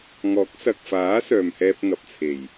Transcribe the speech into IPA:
ŋ ɔː˨˥ k̚ s ɐ˨ k̚ f aː˨˥ s œː˨ m h ɛː˧ p̚ ŋ ɐ˨ p̚ t͡sʰ e˨˩ j

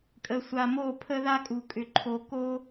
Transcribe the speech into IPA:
kʼ ə˨ sʷ a˨ m o˦˨ pʰ ə˦ ð a˦ kʼ u˨ kʼ ʏ˨ ǃʰ o˨ k o˦

